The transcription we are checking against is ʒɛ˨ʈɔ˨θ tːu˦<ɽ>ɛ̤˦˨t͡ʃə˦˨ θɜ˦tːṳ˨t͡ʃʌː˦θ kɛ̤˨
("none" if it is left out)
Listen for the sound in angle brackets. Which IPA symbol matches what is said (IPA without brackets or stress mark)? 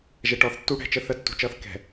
ɽ